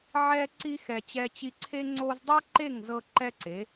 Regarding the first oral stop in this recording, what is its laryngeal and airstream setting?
click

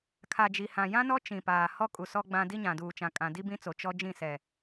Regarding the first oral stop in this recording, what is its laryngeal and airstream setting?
aspirated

